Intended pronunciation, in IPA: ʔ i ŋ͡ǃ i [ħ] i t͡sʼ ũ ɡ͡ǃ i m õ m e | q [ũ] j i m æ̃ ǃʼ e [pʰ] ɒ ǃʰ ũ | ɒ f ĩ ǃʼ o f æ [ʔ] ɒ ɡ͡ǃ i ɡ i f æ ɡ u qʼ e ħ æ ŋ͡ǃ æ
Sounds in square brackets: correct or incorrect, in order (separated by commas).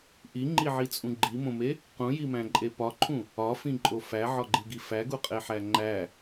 incorrect, correct, incorrect, incorrect